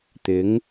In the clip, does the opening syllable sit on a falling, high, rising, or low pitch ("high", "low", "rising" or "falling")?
rising